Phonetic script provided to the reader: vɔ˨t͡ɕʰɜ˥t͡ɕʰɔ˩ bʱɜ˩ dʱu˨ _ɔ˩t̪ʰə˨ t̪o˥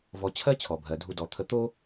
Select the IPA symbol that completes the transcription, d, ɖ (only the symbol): d